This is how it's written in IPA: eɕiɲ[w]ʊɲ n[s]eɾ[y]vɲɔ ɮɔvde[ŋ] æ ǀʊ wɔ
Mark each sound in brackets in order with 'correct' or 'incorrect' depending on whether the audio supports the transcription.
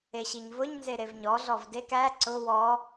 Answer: incorrect: v, incorrect: z, incorrect: e, incorrect: k

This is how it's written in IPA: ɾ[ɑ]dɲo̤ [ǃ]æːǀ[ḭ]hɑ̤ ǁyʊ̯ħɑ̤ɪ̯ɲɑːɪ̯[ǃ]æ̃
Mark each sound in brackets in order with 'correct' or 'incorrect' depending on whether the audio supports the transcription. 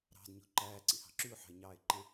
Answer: incorrect: ɑ̤, correct, correct, correct

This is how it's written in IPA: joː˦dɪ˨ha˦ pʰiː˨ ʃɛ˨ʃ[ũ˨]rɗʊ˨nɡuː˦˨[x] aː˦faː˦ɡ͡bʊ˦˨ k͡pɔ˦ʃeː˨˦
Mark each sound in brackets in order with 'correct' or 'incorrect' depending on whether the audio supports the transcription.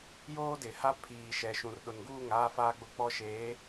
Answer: correct, incorrect: ŋ

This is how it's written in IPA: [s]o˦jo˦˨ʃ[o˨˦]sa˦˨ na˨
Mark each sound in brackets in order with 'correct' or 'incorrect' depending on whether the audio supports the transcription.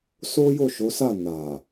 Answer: correct, correct

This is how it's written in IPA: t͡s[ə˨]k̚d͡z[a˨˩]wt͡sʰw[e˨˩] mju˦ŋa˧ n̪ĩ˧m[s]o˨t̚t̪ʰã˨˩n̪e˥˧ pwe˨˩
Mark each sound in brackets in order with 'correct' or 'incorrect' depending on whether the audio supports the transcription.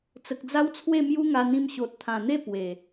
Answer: correct, incorrect: a˦, incorrect: e˥˧, incorrect: ɕ

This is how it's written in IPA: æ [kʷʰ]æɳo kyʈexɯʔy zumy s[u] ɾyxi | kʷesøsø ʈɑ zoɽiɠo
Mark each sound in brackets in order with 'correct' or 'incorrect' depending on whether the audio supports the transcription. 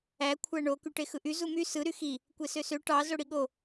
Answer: correct, incorrect: ɯ

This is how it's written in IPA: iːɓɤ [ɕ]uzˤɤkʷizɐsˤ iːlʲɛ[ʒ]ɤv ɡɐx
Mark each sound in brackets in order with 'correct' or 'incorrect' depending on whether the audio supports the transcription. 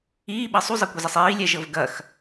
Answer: incorrect: sˤ, correct

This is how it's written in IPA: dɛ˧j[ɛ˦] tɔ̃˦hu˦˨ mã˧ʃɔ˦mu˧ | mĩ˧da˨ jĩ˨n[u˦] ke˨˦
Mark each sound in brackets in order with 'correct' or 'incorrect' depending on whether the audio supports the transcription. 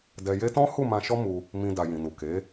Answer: incorrect: e˦, incorrect: u˨

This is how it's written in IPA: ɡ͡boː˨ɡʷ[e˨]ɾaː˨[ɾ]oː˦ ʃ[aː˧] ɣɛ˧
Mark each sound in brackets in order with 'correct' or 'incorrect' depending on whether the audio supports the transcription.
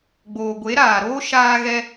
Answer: incorrect: e˨˦, correct, correct

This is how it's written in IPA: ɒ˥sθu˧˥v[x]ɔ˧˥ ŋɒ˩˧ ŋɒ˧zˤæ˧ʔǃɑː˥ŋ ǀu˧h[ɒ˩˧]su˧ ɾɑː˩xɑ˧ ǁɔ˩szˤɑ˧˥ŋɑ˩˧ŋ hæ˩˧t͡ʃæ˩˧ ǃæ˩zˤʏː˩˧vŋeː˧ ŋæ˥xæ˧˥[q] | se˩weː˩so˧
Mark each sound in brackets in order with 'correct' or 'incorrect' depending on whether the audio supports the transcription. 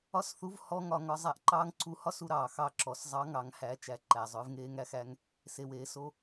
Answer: incorrect: h, incorrect: ɒ˥, incorrect: ŋ

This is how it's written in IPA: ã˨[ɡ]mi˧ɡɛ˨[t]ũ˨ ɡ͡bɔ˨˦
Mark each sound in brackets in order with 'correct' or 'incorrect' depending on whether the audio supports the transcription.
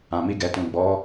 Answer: incorrect: none, correct

